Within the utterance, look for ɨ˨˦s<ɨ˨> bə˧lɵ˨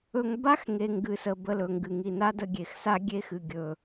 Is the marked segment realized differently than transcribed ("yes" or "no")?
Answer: yes